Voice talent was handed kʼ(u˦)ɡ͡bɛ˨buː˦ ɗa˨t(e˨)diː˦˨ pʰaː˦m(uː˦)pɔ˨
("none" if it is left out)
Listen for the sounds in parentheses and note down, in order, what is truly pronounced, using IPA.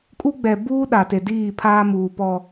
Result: u˦, e˨, uː˨

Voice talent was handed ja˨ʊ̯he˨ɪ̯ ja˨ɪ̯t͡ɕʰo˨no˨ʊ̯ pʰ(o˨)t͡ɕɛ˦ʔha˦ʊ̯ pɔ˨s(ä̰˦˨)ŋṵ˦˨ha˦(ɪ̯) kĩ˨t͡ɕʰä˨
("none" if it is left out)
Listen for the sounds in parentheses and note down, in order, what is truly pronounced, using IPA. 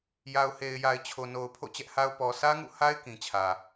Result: o̰˦˨, ä˦, ɪ̯

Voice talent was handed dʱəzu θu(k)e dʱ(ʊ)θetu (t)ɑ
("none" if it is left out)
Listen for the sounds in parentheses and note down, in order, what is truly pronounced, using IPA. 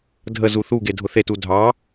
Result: ɡ, ʊ, dʱ

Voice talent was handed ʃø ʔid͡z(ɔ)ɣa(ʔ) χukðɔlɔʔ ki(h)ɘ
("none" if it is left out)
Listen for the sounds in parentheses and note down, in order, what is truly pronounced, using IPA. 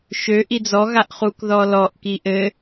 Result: ɔ, ʔ, ʔ

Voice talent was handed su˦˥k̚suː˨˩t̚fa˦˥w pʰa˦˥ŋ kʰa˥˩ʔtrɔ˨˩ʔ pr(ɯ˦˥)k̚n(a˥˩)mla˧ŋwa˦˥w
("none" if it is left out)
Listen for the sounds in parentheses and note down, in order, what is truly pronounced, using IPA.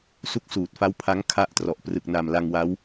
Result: ɯ˨˩, a˨˩

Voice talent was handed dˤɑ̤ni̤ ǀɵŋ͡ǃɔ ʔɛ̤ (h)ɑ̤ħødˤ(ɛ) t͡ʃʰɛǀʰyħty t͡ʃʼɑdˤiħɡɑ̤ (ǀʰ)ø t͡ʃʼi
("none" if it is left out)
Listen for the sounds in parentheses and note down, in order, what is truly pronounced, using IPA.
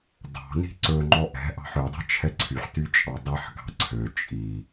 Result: ʔ, ɛ̤, ǀʰ

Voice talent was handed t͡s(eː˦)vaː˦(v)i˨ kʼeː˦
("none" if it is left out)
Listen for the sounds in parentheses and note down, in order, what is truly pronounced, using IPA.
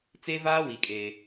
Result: e˦, w

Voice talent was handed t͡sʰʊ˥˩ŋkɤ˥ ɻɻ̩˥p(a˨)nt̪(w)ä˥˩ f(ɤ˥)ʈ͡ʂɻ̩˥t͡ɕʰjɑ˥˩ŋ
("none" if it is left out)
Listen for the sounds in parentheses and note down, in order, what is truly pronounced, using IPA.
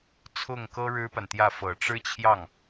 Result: a˨, j, ɤ˨˩

